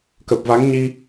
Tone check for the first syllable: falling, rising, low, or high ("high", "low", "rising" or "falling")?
low